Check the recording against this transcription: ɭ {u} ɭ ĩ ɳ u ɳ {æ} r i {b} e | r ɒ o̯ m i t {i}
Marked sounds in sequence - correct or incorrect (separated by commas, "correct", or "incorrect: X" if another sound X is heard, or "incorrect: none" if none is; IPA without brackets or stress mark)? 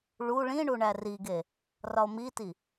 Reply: correct, correct, incorrect: ɡ, correct